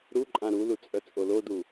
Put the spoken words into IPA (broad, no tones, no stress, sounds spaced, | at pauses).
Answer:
ɾ u ǃʼ ã ɾ u l u t͡sʼ œ t͡sʼ o l o d u